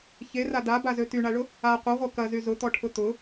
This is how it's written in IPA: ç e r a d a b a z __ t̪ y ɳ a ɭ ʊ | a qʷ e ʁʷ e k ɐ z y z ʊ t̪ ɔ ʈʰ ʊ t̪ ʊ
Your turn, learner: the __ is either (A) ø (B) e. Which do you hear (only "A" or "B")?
A